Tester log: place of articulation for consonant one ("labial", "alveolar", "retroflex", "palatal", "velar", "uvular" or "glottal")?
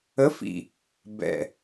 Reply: labial